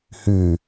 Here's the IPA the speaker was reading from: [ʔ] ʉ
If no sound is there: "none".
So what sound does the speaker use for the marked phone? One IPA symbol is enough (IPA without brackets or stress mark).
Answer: h